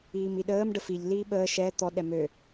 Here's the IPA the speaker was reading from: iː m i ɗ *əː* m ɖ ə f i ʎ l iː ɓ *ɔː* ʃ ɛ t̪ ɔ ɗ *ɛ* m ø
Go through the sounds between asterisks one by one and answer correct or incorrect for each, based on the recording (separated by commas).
correct, incorrect, correct